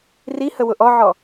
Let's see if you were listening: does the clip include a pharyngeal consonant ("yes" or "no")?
yes